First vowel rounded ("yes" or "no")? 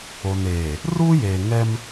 yes